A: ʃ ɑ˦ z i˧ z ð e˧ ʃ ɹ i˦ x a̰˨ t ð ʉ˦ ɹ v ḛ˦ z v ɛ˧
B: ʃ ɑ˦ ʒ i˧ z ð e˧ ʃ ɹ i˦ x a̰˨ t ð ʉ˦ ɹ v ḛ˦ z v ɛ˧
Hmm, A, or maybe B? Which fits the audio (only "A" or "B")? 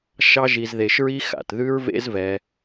B